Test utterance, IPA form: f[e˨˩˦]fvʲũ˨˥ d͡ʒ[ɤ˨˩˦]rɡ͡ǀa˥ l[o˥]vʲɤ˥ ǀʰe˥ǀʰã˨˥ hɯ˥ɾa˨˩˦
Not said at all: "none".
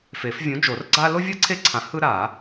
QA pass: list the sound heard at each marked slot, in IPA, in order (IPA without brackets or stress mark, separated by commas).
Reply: e˨˩˦, o˨˩˦, o˥